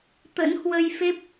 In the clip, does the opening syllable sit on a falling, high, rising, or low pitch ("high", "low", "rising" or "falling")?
rising